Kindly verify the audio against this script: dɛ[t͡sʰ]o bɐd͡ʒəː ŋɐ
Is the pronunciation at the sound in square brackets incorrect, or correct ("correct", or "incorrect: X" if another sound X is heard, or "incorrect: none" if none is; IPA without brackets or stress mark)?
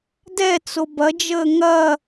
incorrect: t͡s